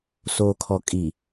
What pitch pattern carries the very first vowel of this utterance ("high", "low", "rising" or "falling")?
low